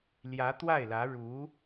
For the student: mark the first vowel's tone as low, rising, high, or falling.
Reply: rising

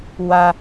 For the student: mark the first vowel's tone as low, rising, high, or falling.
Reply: high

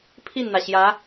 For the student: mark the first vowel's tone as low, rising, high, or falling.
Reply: falling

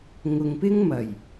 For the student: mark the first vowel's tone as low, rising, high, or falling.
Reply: low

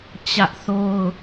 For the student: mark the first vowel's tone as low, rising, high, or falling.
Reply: high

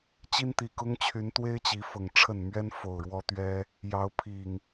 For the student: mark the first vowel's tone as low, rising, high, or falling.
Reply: high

